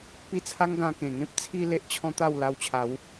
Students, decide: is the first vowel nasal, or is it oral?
oral